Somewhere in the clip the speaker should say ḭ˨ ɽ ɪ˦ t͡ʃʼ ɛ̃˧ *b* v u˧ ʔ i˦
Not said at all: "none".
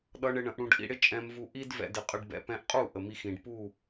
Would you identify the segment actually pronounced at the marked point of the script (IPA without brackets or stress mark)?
m